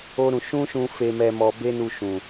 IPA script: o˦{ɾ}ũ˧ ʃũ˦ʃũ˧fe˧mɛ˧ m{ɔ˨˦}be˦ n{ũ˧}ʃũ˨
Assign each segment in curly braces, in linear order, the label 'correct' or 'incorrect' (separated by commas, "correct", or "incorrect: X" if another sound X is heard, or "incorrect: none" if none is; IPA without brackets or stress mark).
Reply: correct, incorrect: ɔ˧, incorrect: u˧